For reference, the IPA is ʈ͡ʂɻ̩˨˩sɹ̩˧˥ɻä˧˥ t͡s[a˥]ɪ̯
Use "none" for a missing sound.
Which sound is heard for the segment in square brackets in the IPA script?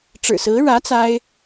a˥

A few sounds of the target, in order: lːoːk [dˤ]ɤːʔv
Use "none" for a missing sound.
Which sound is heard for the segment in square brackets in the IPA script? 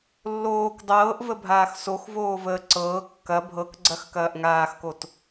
dˤ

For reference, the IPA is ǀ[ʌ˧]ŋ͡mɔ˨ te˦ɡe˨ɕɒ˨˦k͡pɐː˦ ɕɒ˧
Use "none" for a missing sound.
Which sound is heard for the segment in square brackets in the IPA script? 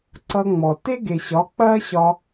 ʌ˧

